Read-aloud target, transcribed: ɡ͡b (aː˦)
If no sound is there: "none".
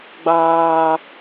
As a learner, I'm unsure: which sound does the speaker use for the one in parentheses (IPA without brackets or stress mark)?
aː˦